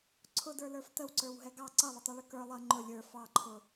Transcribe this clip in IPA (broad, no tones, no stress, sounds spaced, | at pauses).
ǀʰ ʊ d ə˞ l ə˞ f t ə w ǀ ə˞ w ɦ ɛ ɡ ɑ ǀ ʌ lˠ ʊ tˤ ɛ ɭ ʊ k ə˞ lˠ ʌ ŋ͡ǃ ʊ lʲ ə˞ f ɑ ǃʰ ʊ